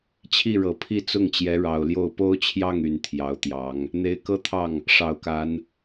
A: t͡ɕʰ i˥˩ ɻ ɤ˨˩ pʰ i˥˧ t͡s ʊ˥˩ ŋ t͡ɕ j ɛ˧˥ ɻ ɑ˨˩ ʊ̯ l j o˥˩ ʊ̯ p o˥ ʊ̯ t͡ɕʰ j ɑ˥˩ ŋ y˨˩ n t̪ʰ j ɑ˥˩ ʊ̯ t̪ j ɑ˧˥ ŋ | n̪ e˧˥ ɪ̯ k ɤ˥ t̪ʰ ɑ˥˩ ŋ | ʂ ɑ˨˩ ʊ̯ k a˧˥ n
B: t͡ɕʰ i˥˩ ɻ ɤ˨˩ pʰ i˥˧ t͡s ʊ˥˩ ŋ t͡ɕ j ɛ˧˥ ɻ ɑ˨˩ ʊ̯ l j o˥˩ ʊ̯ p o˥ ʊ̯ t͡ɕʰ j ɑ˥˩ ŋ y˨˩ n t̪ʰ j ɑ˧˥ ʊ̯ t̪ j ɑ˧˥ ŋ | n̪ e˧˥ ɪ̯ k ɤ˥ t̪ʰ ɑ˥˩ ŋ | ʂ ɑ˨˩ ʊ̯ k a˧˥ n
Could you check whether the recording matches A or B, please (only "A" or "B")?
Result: B